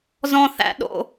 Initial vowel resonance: nasal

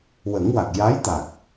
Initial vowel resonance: oral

